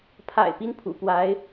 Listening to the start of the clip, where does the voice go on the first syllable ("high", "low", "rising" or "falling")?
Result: low